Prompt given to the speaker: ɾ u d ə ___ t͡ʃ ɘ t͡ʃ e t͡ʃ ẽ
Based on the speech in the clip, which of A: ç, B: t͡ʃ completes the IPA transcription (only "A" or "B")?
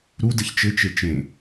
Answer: A